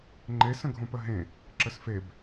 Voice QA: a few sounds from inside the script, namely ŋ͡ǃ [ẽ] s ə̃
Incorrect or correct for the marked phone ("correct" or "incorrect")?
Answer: incorrect